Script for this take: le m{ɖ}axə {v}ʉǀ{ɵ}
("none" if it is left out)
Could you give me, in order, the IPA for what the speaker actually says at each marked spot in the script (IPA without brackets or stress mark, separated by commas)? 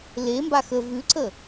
b, v, ə